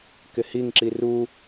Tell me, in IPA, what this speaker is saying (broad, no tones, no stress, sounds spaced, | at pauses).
k ɪ h i ŋ ǁ i r u